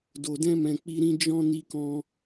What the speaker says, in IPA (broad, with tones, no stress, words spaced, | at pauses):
do˨dɛ̃˧mɛ̃˨ k͡pi˧ɾĩ˧ d͡ʒɔ̃˧ ni˧kɔ̃˧